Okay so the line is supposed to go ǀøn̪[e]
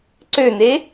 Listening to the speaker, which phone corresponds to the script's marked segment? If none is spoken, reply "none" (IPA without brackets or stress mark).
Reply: e